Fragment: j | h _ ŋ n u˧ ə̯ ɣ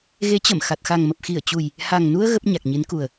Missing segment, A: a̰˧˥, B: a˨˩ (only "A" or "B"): B